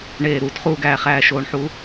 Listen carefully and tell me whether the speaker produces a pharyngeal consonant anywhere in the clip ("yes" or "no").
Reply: yes